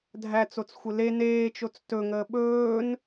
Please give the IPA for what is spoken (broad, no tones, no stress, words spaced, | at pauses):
dʱæt͡sot͡s xʷɘle neːt͡ʃot͡s tɵŋəː ɓɵːn